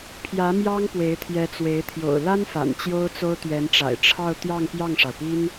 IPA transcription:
pʰ j ä˧˥ m j ɑ˥ ŋ p w e˧˥ ɪ̯ t̪ʰ j ɛ˧˥ t͡s w e˧˥ ɪ̯ t̪ʰ j o̰˨˩ ʊ̯ l a˥ n f a̰˨˩ n t͡ɕ j o˥ ʊ̯ t͡s o˥ ʊ̯ t̪ ɥ ɛ˧˥ n ʈ͡ʂ a̰˨˩ ɪ̯ ʈ͡ʂʰ ɑ˥˧ ʊ̯ t̪ j ɑ˥˧ ŋ p j ɑ˥˩ ŋ ʂ ɑ˩ ʊ̯ p i˥ n

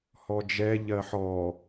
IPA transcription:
h ɔ d͡ʒ ɛ ʎ ɜ ħ ɔ

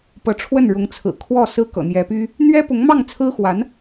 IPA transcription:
p ɤ˧˥ ʈ͡ʂʰ w ə˥˩ n ɻ ʊ˧˥ ŋ t͡sʰ ɹ̩˨˩ kʰ w ɔ˥˩ s ɹ̩˥ k ɤ̰˨˩ n̪ j ɛ˧˥ p y˥ | n̪ ɥ ɛ˥ p ʊ˧˥ ŋ m ɑ˥˩ ŋ t͡sʰ ɹ̩˥ x w a˧˥ n

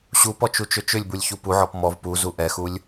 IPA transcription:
ɕ u p ɔ t͡ʃ u t͡ʃ ʏ t͡ʃ ʏ lʲ b u lʲ ç u p u ʕ ɔ p m ɔ v p u z u ʔ ɛ x u lʲ

